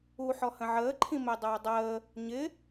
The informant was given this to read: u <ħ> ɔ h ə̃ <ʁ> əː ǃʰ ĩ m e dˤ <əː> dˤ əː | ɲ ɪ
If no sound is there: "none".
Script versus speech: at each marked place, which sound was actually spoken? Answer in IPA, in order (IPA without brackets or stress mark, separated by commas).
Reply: ħ, ʕ, əː